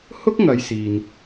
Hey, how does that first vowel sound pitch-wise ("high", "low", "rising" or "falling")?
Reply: high